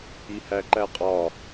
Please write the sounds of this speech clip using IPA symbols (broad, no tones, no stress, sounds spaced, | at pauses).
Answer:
i h æ ǃ æ qʼ ɒ